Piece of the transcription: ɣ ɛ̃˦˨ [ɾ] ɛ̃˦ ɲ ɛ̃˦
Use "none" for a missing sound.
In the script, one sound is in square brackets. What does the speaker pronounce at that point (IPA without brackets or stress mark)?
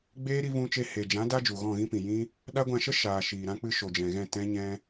t